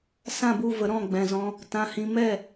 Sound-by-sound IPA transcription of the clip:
s ã˦˨ b u˦˨ v ə˨˦ ɾ ɔ̃˦˨ ɡ͡b ɛ̃˨ z ɔ̃˧ | t ã˧ h ĩ˧ m ɛ˦˨

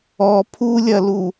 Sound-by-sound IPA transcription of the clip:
ɔ pʰ u lʲ ɐ l u

